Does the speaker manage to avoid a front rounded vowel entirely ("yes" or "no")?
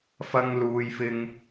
yes